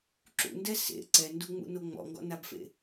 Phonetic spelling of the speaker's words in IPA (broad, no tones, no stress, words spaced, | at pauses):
ǁṵndɛ sḛ ǀɛnduŋ͡mṵno ŋ͡mɔ̰ŋɡɔ̰nabfḛ